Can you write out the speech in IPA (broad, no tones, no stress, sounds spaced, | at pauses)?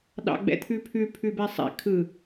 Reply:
ɗ ɑ̰ ɡ͡b ɛ̰ t̪ʰ ʉ pʰ ʉ pʰ ʉ b ɛ sˤ ɛ̰ kʰ ɯ